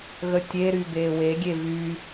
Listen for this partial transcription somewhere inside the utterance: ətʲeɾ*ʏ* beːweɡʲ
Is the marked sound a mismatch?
yes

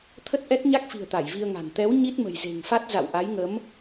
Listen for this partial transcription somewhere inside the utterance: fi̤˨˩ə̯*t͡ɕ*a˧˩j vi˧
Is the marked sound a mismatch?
yes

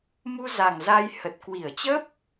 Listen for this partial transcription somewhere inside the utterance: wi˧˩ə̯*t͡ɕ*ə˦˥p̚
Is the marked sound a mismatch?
no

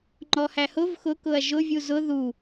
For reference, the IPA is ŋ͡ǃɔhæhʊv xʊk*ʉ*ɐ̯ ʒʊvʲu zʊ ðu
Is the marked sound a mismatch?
yes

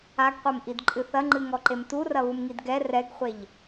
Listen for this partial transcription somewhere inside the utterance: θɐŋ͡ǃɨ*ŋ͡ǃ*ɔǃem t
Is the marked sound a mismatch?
yes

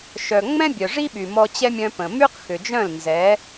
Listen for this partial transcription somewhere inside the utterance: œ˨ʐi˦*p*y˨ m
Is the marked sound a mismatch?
yes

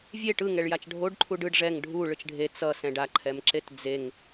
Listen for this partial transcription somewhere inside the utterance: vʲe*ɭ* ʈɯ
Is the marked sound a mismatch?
yes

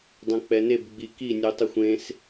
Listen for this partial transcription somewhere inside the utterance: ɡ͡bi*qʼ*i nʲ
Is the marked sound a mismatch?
yes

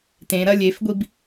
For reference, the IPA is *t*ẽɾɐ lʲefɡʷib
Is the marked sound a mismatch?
no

